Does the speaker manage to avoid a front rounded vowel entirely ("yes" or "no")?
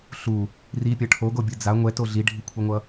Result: yes